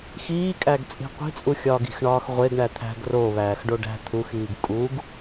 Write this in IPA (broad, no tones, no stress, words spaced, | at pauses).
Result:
xiːkʼæɡ t͡sʼi̤qʷi̤t͡sʼu xʲɒːɡi̤xɳɒːx ʁʷeɡɳæ t̪ʰæ̤ɡ ro βæːxɖoɖæ̤ t̪ʰuxiːɡ kʼuɡ